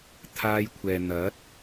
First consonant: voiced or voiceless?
voiceless